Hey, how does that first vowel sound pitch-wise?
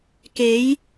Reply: rising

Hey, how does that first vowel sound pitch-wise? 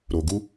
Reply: low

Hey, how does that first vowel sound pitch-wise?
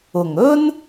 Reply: low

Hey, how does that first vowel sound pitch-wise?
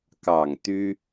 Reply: low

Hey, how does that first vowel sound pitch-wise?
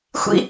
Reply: high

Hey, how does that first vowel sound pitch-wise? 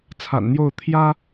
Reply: low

